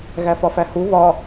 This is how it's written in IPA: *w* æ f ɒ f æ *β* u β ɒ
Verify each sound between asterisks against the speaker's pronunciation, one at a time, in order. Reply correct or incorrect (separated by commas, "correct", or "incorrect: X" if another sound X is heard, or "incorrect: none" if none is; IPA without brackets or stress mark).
incorrect: ɣ, incorrect: h